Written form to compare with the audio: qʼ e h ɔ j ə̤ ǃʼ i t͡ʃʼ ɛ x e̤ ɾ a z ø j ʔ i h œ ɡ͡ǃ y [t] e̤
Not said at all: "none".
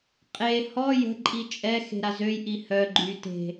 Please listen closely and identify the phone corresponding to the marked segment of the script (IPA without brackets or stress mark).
t